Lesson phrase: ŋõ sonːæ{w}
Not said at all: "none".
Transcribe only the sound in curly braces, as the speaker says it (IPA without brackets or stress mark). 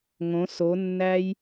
j